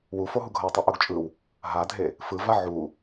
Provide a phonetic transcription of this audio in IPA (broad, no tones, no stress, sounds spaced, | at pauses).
w u f o ɦ u ɡʱ ʌ w tˤ ʌ ʔ o ɡ t͡ʃʼ ɯ w | ɦ a dʱ e | f ɯ v a ʕ u